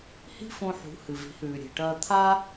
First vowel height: high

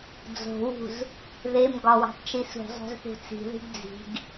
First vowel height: mid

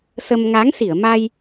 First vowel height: mid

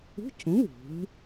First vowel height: high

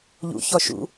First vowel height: high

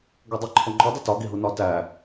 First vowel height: mid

